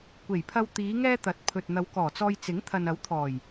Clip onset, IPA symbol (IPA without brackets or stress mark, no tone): kʷ